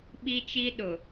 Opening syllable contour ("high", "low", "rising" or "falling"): high